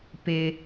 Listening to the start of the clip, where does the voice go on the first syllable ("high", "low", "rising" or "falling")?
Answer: low